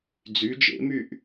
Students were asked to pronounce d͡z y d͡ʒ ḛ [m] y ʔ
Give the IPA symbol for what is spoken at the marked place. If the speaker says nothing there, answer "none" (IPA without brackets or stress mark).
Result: m